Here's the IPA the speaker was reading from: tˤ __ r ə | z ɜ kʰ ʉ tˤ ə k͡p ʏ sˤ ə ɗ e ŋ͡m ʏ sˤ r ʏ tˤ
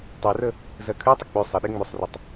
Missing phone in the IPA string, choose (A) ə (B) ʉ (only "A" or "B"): B